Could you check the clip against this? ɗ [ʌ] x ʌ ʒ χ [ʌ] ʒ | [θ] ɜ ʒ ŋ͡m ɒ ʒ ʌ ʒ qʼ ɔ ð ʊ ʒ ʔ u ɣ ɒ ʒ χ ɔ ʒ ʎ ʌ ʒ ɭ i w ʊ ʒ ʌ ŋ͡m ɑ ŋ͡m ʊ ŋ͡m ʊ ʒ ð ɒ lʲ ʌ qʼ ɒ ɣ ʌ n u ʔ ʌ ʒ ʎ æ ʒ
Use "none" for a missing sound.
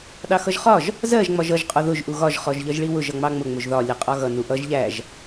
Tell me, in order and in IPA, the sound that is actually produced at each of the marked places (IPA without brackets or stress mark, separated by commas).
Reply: ɑ, ɒ, z